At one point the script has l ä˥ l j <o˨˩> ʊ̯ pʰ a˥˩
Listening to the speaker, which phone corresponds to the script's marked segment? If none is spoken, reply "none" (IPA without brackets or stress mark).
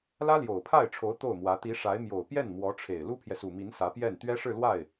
o˨˩